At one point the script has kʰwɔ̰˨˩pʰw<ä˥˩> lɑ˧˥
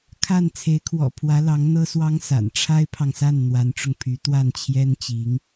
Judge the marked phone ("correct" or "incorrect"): incorrect